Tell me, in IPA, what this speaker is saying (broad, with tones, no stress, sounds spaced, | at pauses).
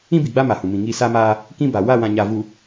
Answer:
ĩ˦ b i˨ ɡ͡b a˦ m a˨ h ũ˨ m ĩ˨ ŋ i˦˨ s a˦ m aː˦ | k ĩ˦ b a˨ w a˦˨ w ã˨ ɲ a˨ v u˨